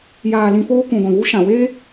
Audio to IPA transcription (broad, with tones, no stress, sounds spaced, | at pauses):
j aː˧ l ĩ˧ f oː˦ k ũ˨ ɡʷ ĩ˨ v u˦ ʃ ã˨ w eː˦